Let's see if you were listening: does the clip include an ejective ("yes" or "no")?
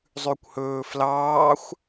no